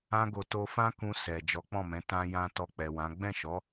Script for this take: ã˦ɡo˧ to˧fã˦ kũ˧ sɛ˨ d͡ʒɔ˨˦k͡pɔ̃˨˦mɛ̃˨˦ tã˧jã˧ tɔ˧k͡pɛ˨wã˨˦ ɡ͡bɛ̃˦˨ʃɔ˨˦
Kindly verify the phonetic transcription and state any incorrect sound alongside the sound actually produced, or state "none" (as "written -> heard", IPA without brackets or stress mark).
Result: ɔ̃˨˦ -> ɔ̃˦˨